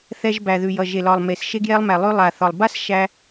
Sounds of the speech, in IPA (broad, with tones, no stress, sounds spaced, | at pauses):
θ ɛ˧ ʒ b æ˩ ð ʉ˩ j ʌ˩ ʒ e˩ l ɒ˩ lˠ m e˩ s ʃ e˧ ɡ j ɛ˧ lˠ m æ˩ lˠ ʉ˧ lˠ a˩ θ ɒ˩ lˠ b a˥ s ʃ æ˧